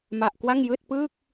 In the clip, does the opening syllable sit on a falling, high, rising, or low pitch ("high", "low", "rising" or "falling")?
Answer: low